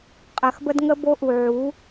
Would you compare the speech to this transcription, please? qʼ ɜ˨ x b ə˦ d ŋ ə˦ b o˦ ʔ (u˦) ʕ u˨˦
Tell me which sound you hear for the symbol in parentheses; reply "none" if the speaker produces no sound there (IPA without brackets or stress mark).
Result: u˨